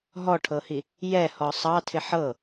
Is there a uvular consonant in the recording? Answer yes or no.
no